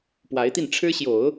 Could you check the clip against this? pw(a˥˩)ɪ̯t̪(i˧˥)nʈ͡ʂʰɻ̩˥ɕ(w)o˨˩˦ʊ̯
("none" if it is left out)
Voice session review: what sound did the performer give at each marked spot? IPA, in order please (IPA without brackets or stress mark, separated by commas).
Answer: a˧˥, i˥˩, j